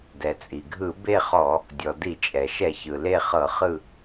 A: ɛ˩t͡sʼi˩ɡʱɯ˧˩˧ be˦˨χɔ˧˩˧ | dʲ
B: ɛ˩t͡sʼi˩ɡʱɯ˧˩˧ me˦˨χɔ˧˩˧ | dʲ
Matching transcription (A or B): A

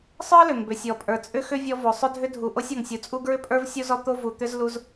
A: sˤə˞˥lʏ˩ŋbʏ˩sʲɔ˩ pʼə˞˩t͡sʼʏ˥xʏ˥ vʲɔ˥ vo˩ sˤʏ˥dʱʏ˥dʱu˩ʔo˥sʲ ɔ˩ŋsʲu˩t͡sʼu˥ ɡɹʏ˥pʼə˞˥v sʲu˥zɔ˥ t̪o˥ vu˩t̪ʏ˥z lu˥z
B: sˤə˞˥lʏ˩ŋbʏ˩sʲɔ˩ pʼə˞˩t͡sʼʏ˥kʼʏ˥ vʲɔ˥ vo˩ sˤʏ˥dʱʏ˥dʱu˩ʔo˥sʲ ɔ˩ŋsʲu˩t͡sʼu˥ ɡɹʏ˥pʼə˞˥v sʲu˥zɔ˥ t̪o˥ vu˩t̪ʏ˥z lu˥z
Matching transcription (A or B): A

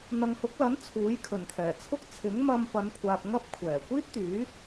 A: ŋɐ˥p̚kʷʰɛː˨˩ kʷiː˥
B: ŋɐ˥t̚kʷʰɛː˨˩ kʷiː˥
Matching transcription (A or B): A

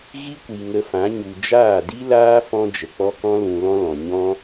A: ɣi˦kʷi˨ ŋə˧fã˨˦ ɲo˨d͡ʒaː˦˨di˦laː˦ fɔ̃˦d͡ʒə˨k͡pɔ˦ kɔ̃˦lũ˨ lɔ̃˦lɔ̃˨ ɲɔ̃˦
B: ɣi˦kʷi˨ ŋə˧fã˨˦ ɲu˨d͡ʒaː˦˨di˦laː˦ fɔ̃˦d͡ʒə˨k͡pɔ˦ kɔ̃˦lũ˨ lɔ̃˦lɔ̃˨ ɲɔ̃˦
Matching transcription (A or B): B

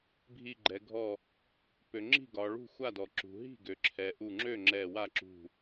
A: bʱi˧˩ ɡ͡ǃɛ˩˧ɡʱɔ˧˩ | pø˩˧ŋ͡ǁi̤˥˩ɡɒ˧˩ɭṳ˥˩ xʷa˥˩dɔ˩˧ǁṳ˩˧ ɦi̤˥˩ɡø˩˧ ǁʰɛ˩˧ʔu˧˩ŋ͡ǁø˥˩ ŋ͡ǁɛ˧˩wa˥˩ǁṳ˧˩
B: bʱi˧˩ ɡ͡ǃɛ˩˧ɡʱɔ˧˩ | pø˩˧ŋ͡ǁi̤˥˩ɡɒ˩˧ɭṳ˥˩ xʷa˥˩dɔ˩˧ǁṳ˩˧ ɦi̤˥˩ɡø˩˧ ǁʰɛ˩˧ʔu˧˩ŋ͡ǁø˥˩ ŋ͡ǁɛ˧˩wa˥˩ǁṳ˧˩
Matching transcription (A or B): B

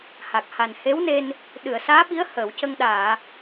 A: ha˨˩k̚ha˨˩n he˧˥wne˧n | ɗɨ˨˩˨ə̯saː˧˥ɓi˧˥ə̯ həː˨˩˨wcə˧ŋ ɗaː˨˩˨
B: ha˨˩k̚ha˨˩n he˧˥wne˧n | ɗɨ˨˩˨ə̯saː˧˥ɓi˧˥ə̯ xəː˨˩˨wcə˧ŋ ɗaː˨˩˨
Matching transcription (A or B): A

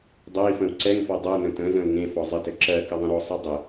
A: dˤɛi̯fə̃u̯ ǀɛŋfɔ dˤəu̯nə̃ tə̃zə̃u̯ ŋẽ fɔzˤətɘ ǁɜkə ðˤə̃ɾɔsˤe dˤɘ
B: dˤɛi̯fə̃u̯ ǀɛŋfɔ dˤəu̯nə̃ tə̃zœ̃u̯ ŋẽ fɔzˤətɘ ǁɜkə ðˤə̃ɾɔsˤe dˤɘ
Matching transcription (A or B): A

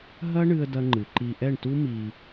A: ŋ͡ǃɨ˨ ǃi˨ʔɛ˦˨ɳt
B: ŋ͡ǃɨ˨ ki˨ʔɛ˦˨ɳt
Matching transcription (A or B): A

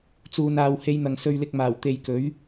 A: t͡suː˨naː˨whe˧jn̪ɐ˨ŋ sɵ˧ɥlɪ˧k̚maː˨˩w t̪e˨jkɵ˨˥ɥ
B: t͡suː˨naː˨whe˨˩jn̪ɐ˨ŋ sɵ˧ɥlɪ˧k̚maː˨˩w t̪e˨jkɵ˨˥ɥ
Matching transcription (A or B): A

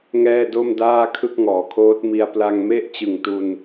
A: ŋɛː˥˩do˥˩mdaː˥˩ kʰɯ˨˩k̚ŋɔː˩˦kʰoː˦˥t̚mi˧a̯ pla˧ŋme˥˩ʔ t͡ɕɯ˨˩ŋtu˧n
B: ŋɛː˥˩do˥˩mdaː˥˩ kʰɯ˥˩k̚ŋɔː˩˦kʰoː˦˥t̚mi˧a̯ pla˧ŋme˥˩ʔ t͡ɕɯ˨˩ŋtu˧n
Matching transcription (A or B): B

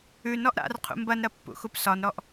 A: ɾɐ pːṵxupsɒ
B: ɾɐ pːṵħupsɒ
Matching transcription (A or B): A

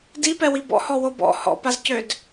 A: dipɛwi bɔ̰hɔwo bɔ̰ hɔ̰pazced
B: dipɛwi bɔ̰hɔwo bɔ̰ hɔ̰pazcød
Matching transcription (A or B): B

